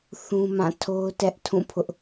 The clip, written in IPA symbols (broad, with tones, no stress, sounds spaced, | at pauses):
θ ũ˦ m ã˦˨ tʰ o˦ ʊ̯ t ɛ˦ ʔ tʰ ũ˦˨ pʰ ʊ˦ ʔ